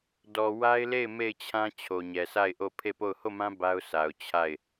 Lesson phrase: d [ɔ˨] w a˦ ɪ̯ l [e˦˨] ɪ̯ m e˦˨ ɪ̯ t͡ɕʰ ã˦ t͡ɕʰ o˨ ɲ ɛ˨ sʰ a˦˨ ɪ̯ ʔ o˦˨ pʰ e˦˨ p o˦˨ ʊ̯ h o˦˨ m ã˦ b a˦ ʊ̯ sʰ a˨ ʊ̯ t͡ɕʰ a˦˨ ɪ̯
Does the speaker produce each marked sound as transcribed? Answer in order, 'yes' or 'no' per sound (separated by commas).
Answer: yes, yes